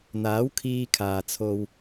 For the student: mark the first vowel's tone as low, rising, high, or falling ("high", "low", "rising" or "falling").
rising